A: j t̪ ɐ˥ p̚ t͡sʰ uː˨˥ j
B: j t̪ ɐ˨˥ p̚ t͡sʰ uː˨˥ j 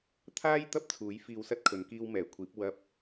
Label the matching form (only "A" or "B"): A